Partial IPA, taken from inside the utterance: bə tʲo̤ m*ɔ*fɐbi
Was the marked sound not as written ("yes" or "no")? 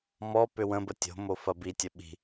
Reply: yes